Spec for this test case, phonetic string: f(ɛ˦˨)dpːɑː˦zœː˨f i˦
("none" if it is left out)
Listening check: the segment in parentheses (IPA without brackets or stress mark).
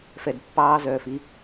ɛ˨